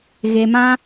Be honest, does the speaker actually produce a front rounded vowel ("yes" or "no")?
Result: no